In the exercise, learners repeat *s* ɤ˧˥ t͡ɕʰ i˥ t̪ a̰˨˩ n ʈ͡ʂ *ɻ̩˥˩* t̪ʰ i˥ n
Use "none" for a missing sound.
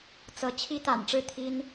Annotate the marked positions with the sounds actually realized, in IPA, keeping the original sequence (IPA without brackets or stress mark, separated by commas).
t͡s, ɻ̩˥˩